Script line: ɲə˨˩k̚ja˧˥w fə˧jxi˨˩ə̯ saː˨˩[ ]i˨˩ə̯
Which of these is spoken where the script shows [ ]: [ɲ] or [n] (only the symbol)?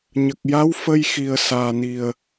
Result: n